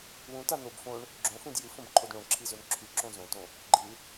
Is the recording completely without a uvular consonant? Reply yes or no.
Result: yes